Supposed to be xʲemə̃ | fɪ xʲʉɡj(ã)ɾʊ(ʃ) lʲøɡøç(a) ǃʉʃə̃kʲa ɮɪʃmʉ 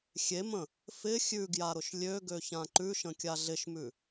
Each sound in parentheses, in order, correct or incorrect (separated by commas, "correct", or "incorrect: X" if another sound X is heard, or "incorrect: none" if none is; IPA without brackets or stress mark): incorrect: a, correct, incorrect: ã